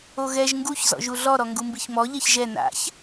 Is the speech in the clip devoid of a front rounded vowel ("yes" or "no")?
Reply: yes